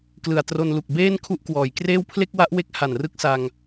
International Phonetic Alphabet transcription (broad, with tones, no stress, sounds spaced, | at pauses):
k l ɯ˨˩ a̯ t r o˧ n l u˨˩ k̚ b eː˥˩ n kʰ u˦˥ ʔ k w ɔː˩˦ j k r eː˥˩ w pʰ l e˥˩ k̚ w a˦˥ ʔ w e˦˥ k̚ h a˨˩ n r ɯ˦˥ k̚ s a˧ ŋ